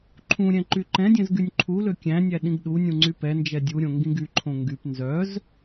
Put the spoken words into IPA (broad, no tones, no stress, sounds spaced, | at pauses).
ǃʰ ũ ɾʲ ɛ̃ ǃ y ǃ ɛ̃ dʲ ɛ̃ z ɡ y nʲ ǃʰ u l ø kʲ æ̃ nʲ æ ɗ ĩ ɡ ɗ u nʲ ũ ŋ͡ǀ y p ɛ n d͡ʒ ɛ dʲ u ɾʲ õ ŋ ɡ ĩ ɡ y ǃʰ õ ŋ ɡ y p n z œ z